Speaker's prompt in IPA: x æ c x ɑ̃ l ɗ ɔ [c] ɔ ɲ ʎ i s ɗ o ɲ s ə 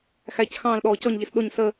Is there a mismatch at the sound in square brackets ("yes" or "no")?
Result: no